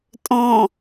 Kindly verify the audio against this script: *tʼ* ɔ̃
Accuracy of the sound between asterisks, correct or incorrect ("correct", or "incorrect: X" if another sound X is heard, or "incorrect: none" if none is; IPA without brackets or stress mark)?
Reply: correct